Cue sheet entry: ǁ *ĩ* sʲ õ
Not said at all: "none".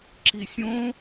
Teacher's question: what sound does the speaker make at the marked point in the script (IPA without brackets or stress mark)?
i